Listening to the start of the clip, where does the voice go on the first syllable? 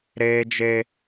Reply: high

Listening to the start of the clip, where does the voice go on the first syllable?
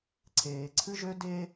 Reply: low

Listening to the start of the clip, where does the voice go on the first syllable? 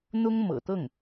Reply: high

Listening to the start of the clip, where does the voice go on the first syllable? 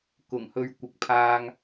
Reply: low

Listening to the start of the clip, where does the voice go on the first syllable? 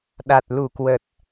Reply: low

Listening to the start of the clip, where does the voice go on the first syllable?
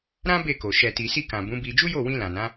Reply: high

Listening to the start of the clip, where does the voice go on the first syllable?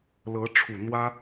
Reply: rising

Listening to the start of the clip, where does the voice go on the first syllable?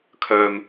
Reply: low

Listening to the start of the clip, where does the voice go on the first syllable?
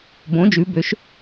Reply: rising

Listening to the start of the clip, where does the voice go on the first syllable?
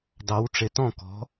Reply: rising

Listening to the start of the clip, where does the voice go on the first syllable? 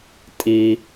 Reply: low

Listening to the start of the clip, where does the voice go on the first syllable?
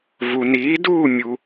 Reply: low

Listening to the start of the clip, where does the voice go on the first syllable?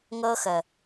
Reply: high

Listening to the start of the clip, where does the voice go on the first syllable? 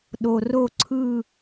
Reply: low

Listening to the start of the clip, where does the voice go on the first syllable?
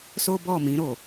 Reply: high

